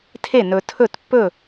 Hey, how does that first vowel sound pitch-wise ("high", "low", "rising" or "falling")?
falling